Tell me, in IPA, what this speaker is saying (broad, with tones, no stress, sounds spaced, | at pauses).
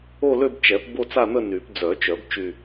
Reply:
o˥˧ l ø˥˧ b t͡ʃ ɛ˨˩˦ p b o˥˧ t͡s a˥˧ n̪ ə˥˧ n y˨˩˦ p d͡z œ˨˩˦ t͡ʃ œ˨˩˦ b t͡ʃ y˥˧